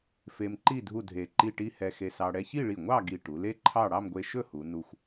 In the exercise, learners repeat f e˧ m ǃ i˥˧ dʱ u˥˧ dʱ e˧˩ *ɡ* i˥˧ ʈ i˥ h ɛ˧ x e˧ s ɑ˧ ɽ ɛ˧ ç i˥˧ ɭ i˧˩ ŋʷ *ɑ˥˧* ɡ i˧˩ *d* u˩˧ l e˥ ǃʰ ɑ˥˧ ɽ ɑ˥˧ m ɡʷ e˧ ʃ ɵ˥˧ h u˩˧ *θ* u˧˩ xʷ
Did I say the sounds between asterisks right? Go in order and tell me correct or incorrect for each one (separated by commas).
incorrect, correct, incorrect, incorrect